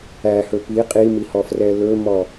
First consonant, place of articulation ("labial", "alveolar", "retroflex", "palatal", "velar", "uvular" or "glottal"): glottal